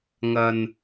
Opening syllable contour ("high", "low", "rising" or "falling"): low